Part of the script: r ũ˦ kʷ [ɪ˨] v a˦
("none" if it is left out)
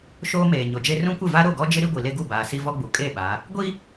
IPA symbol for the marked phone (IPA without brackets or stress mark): ɪ˦˨